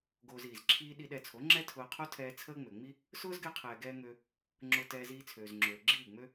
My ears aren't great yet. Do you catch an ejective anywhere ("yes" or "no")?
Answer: no